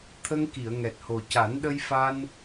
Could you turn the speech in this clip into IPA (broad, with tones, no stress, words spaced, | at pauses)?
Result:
t̪ʰə˧ŋki˨˩˨ə̯ ŋɛ˨˩t̚ho˨˩ ca˨˩˦nɗə˧j fa˧n